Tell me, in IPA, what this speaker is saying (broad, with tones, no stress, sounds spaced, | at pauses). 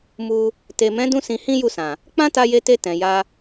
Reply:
m u˧ | t e˨ m ɛ̃˨˦ d ũ˦ s ĩ˧ h ĩ˦ j u˦˨ s ã˨ | k͡p ã˦ t a˧ j e˧ t e˧ t ɛ̃˨ j a˧